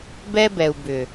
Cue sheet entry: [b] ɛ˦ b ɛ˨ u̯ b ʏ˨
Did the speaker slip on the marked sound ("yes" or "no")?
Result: no